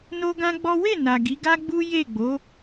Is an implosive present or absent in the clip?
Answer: absent